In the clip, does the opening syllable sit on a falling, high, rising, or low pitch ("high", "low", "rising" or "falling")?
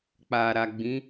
low